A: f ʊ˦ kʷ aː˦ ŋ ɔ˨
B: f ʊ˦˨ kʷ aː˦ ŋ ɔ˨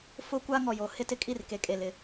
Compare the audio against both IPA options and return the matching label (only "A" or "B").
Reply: A